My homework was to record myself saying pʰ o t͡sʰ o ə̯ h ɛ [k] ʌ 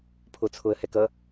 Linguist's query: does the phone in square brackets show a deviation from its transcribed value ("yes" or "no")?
no